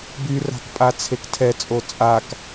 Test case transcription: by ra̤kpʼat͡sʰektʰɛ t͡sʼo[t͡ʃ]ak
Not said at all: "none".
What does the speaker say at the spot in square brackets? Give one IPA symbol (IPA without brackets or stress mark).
t͡sʼ